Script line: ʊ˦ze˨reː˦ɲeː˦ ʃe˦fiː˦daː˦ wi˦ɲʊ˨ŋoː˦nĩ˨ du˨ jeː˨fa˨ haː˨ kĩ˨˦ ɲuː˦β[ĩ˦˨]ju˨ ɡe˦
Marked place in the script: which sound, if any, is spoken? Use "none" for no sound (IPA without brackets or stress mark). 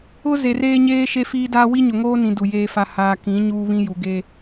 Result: ĩ˦